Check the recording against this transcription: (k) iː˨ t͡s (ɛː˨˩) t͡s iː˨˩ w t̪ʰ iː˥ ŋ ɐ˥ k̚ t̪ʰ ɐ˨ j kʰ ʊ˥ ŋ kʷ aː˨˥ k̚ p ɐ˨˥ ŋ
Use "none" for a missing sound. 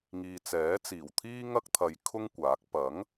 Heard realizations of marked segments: ŋ, ɛː˨˥

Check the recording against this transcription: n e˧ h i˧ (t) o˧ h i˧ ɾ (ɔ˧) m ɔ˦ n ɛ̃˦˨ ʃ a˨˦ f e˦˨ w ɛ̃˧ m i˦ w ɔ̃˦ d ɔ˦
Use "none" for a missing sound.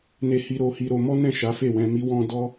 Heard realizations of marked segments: ɾ, o˧

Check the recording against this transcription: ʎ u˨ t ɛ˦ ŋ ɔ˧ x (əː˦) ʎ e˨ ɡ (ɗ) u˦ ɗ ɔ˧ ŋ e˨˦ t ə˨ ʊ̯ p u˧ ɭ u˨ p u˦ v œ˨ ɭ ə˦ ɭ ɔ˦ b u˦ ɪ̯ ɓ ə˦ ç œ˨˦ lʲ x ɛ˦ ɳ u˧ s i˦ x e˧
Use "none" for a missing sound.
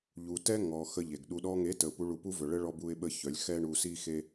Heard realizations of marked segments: ə˦, ɗ

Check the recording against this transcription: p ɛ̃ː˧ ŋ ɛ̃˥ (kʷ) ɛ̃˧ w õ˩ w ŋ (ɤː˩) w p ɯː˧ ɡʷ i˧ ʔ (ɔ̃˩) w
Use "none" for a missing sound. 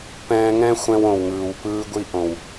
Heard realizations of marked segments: xʷ, ɯː˩, õ˩

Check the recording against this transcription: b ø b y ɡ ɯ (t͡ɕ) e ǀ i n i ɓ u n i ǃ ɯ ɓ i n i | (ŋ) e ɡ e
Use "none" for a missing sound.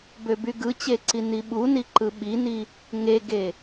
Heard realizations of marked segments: t͡ɕ, ŋ

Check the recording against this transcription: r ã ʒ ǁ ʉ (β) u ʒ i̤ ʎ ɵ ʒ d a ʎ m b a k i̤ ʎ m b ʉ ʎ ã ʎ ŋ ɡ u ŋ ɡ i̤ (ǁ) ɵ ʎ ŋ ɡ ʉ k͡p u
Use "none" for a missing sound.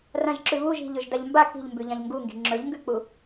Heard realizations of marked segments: β, ŋ͡ǁ

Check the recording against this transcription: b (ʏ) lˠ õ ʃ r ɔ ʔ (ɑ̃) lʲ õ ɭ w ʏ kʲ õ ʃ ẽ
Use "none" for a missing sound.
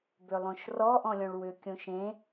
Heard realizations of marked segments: ʏ, ɔ̃

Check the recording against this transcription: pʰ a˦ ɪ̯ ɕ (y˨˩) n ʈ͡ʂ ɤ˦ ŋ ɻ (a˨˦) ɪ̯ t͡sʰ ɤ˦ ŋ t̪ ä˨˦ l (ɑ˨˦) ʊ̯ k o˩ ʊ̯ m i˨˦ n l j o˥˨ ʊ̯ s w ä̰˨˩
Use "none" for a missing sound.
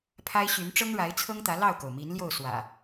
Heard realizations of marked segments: y˨˦, a˨˦, ɑ˥˨

